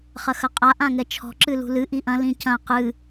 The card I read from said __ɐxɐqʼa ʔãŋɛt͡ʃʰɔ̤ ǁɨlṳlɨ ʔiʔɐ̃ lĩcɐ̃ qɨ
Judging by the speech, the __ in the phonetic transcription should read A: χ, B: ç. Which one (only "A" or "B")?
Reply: A